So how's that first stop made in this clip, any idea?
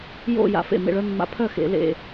aspirated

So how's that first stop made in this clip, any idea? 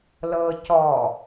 plain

